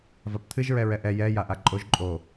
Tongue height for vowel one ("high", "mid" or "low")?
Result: low